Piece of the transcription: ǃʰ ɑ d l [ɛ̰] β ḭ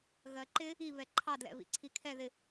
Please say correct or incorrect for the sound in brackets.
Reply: correct